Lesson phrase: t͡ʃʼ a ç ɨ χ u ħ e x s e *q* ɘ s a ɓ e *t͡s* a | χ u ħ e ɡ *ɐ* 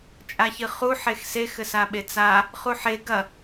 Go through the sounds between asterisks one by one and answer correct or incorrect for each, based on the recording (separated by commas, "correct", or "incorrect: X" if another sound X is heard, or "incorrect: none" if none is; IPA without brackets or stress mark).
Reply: incorrect: x, correct, correct